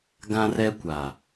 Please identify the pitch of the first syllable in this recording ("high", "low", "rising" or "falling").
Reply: high